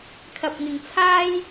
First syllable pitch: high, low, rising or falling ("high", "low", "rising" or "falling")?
low